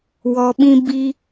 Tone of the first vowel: low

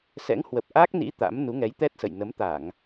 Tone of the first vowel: rising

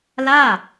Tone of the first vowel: falling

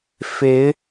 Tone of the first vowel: rising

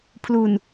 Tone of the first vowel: low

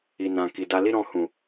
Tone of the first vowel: low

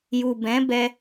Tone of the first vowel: low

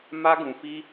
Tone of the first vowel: high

